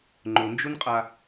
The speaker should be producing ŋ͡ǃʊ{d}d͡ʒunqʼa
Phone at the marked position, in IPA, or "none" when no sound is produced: n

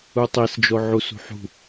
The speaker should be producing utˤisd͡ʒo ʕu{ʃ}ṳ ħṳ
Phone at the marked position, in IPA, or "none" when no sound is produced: s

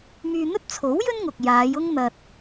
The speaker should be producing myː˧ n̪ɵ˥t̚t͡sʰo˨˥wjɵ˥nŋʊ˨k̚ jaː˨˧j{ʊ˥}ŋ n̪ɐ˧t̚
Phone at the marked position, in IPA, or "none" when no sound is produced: ʊ˥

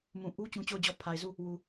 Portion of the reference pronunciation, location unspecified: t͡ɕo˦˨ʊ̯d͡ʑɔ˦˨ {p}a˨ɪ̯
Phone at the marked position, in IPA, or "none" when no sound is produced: pʰ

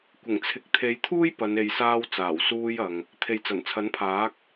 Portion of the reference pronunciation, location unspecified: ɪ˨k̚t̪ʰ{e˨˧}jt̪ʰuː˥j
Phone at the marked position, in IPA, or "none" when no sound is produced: e˨˧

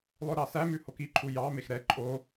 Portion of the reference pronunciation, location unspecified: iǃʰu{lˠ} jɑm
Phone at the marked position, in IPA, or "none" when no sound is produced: none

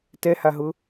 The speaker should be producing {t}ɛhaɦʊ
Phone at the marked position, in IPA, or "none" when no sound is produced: t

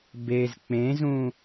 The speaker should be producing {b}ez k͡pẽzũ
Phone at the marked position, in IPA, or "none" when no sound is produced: b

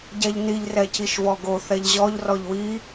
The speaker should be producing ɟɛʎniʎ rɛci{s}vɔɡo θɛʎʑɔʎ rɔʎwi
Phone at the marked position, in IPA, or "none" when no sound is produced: ʃ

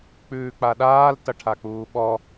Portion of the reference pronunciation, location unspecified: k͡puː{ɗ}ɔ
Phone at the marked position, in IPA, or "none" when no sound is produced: ɓ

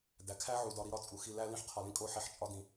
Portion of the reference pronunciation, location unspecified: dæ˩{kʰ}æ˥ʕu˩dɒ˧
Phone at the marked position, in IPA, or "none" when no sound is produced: kʰ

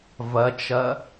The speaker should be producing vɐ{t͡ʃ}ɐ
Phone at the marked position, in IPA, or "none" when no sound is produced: t͡ʃ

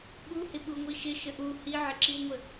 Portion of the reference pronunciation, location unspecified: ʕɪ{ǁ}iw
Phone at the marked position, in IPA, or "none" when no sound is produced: ǁ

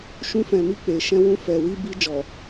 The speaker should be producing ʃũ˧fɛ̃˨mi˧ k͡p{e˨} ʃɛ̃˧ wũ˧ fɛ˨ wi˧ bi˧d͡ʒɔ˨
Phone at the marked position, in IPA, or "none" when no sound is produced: e˨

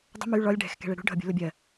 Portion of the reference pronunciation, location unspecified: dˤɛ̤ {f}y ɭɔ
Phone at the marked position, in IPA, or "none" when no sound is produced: m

